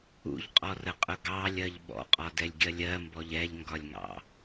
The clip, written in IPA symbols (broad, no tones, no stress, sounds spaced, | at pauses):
ṵ ʎ qʼ ɔ r ə qʼ ʊ ɡ ɑ lʲ ɜ ʎ ɓ ɔ̰ qʼ ɒ d ɛ lʲ ɡʲ ɜ lʲ ɜ m b ɔ ʎ ɛ ʎ ŋ ɡ ɒ lʲ ŋ ɑ̰